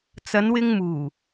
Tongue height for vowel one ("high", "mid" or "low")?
low